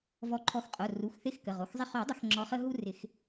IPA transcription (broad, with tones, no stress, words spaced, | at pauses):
vɔ˨˦ǃʰɔ˨˦xqʼo˩˧˩ ru˩˧˩xθɪ˦˨x kə˩˧˩ʁo˩˧˩xzˤɪ˦ χo˨˩˦dˤə˨˦x ŋ͡ǁɔ˨˦χə˦ ɦu˦rɪ˨˩˦x